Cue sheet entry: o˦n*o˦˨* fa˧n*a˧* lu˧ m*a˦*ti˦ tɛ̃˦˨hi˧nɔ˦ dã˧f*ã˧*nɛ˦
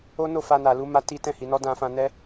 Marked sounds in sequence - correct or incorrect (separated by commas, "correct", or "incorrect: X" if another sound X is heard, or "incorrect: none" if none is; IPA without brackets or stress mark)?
correct, incorrect: a˨, correct, correct